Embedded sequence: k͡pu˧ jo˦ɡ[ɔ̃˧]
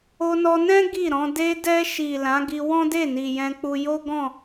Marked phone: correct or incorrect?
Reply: incorrect